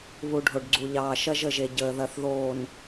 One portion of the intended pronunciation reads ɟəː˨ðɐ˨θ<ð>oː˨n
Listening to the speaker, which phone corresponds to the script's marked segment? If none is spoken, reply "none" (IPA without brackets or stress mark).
ð